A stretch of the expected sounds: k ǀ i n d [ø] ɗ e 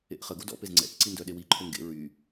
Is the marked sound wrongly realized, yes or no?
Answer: yes